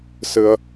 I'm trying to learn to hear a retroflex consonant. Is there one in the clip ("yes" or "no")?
no